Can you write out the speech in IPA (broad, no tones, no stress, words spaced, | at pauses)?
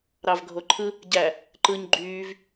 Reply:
ɾɑvɡʱoǃʰɯ | ɟæ | ǃɯɲ ɡ͡ǃyːv